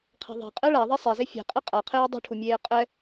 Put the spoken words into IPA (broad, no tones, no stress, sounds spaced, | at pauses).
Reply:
qʰ ɛ̤ ðˤ e̤ qʼ ɛ ɭ a ðˤ e sˤ ɛ z e fʲ e̤ qʼ ɛ qʼ a qʰ eː dˤ ṳ ʈʰ u mʲ eː qʼ ɛ